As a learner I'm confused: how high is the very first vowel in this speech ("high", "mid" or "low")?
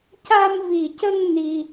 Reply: low